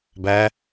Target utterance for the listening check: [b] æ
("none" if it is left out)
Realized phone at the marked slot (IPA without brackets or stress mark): b